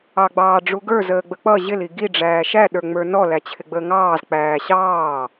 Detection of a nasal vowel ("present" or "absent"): absent